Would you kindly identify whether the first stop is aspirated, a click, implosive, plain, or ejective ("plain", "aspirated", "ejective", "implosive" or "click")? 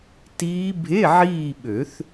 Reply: plain